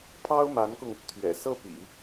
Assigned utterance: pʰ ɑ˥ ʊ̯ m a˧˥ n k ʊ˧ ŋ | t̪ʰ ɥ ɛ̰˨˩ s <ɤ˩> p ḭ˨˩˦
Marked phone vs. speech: incorrect: ɤ˥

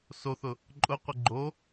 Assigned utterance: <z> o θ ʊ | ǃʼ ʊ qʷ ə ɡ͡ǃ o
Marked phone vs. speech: incorrect: s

